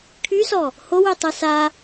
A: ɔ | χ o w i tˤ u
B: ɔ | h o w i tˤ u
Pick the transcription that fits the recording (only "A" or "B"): B